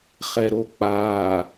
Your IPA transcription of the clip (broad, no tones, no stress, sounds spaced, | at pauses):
χ ɛ ɾ o k͡p aː